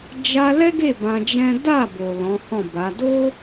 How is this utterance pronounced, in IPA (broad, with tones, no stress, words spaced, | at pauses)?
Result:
d͡ʒa˧ lɛ˦ɡe˦˨ bã˧d͡ʒɛ̃˦ da˦˨bo˨ lɔ̃˨˦hɔ̃˦˨ba˨˦ do˦